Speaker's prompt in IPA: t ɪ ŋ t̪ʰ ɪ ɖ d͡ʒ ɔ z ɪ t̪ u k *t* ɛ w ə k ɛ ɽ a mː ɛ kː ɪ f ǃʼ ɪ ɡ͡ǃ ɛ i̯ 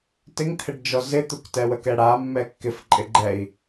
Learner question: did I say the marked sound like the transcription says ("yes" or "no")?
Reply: yes